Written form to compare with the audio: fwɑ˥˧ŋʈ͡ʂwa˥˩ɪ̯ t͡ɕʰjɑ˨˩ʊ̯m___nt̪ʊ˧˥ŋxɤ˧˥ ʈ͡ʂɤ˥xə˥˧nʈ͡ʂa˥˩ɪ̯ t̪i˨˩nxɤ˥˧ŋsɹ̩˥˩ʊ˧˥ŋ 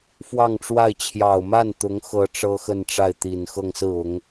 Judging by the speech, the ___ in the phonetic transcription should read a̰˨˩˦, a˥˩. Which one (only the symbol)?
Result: a˥˩